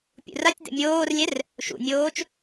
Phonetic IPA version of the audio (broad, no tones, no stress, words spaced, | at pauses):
pʲṵratʲd̪ɛ̰ mʲoːrlʲɛr | ʃṵnʲoːt͡ʃ